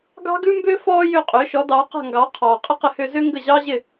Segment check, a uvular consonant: present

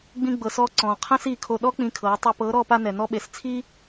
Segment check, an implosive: present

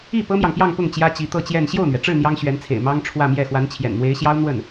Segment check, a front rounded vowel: absent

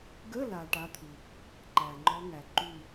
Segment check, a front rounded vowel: absent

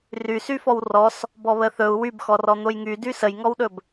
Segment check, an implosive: present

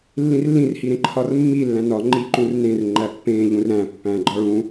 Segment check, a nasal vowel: present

